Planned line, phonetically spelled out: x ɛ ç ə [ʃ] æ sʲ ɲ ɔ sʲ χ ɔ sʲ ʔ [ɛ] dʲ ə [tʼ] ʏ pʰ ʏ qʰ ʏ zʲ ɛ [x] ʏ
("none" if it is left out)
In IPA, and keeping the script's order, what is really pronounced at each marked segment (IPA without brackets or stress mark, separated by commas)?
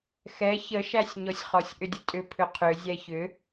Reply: ʃ, ʏ, tʼ, ç